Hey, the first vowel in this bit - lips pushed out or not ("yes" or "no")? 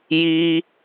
no